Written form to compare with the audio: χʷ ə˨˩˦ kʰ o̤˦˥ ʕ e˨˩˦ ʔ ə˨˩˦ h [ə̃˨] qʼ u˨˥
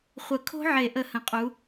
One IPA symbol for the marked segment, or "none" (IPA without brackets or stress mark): ə̃˨